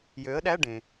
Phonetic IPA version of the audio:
jø˩˥ə̯ɗæ˧˥˧ ɖẽ˩

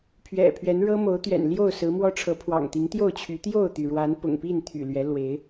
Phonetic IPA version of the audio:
pʰɥɛ̰˨˩pʰɥɛ˨˦n ɻɤ˦mo˨˦ʊ̯t̪ɥɛ̰˨˩nljo˥˨ʊ̯ sɹ̩˨˦mwɔ˦ ʈ͡ʂʰɤ˨˦pʰwɑ̰˨˩ŋt̪i˨˦ŋ t̪jo˥˨ʊ̯t͡ɕʰy˨˦ t̪jo˥˨ʊ̯t̪y˩ɻwa˨˦n pʊ̰˨˩ŋpi˥˨nt̪ʰy̰˨˩ lɥɛ˨˦ lwe˨˦ɪ̯

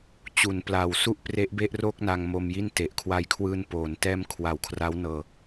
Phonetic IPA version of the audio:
t͡ɕu˩˦n plaː˨˩wsu˥˩ʔ pre˦˥ʔbe˥˩ʔroː˥˩k̚na˧ŋ mo˧mji˥˩n te˨˩ʔkʰwa˧jkʰwɯː˧n poː˩˦n tɛː˧m kʰwa˩˦wkʰra˦˥wnɤː˧

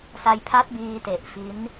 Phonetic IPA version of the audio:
sa˧jpʰa˦˥t̚biː˧te˨˩ʔ fi˦˥n

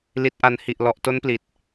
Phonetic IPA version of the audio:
li˨˩t̚ʔa˨˩nhi˨˩ʔ lɔ˨˩ʔto˦˥npli˨˩t̚

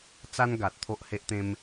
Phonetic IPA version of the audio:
t͡sa˦nɡa˨t̚ t̪ʰo˦ʔhe˦ʔt̪ẽ˦m

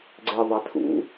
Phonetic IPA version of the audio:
ɡ͡ǀeðˤæ tʰṵ

